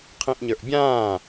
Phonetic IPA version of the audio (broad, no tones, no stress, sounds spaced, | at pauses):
qʰ ĩ ʔ ɲ ə˞ ʔ bʲ ãː